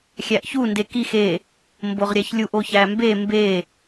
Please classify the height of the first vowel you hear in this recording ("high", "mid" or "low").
low